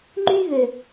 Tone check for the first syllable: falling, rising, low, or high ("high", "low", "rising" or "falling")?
high